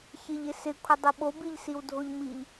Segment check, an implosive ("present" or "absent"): present